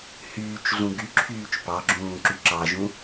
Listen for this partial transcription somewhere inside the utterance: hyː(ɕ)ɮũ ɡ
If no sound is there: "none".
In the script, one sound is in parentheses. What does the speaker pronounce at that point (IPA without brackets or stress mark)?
t͡ʃ